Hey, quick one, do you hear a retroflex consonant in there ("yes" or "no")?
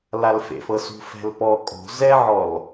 no